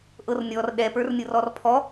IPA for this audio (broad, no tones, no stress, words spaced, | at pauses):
ʔɤrnʲɔr ɗɛpə˞rnʲɤrɔr pʰɔ